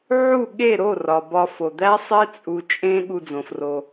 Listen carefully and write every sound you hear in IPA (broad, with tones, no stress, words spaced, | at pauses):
ʕu˦˨ɠe˦˨ ɾo˦˨ rɒ˨bɒ˧ fo˨d̪æ˦sˤe˦ t͡sʼu˧t͡ʃʼẽ˦ ɠu˧d͡zõ˨fro˧